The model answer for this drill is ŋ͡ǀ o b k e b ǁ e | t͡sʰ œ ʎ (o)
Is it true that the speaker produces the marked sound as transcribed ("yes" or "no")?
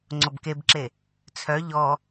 no